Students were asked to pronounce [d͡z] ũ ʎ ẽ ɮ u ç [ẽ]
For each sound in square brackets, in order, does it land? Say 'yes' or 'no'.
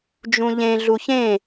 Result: no, yes

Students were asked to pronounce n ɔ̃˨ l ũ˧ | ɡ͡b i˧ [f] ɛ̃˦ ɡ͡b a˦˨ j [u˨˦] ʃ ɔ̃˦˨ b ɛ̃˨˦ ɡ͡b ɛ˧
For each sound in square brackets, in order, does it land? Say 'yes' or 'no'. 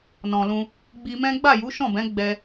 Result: no, yes

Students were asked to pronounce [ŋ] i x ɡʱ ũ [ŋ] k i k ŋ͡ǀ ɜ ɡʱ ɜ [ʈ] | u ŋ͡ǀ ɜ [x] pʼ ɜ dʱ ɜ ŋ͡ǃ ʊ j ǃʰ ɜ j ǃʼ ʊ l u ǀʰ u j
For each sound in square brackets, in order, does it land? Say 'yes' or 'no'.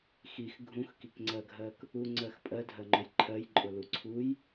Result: no, no, no, yes

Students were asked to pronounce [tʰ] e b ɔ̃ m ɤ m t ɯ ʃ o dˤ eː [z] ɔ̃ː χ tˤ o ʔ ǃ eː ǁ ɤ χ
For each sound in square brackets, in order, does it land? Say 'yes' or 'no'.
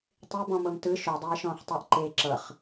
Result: no, no

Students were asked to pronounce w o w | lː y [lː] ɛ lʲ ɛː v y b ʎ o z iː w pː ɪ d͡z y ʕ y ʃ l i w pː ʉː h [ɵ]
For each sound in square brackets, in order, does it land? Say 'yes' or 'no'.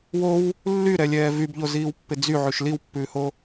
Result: no, no

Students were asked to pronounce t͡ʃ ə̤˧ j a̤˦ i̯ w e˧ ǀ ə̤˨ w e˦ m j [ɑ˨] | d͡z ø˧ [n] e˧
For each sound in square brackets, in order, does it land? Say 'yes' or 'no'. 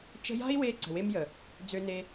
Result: no, yes

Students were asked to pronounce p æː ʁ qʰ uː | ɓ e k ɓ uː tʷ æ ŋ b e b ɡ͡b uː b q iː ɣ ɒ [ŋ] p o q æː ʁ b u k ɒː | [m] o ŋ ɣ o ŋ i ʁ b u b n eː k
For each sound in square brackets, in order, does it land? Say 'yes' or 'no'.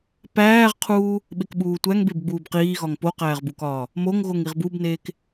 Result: yes, yes

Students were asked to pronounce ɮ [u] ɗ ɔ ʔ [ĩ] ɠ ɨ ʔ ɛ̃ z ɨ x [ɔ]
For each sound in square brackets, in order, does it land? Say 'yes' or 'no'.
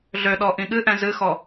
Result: no, yes, yes

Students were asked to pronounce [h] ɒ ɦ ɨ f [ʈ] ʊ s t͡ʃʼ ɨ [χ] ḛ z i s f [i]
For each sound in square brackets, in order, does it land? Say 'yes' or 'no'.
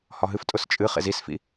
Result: yes, no, yes, no

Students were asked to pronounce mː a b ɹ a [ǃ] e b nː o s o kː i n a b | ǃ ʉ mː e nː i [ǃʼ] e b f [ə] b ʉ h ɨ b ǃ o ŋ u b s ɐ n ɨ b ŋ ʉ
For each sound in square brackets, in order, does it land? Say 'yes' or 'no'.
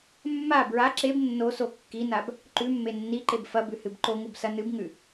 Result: no, no, no

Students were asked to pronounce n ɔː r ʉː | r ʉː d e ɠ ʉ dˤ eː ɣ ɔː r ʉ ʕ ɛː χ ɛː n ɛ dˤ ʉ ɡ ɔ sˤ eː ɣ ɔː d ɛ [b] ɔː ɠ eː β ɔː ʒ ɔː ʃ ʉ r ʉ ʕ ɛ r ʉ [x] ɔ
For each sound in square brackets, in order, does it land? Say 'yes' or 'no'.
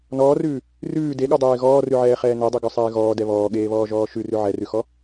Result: no, yes

